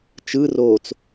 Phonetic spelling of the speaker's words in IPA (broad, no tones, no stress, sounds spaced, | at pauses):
t͡ʃ ɯ r oː t͡s